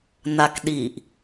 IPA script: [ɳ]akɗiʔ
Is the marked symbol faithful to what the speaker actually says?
no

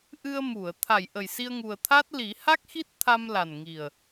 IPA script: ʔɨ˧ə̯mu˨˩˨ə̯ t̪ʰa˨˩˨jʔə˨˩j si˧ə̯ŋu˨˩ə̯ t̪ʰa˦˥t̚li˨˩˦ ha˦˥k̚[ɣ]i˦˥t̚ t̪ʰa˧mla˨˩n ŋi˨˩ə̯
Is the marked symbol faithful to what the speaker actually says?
no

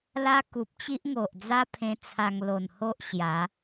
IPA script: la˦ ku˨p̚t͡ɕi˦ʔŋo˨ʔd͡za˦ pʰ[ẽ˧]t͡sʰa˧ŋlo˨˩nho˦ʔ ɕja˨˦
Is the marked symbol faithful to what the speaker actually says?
yes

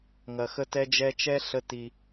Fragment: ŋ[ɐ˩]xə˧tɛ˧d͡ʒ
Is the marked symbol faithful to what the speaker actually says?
yes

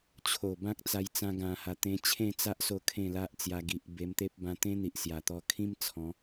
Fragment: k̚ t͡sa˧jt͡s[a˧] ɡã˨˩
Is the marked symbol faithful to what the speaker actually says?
no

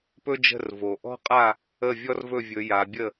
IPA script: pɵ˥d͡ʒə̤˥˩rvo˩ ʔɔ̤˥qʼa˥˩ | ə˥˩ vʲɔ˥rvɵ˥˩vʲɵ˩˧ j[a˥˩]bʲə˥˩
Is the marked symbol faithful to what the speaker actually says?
no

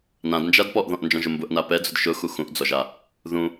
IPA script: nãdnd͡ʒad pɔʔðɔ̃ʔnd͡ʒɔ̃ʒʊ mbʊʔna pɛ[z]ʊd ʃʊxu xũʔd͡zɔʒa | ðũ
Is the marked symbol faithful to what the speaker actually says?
no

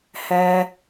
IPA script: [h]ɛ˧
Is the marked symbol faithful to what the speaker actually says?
yes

